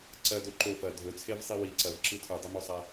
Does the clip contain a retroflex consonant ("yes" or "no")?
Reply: no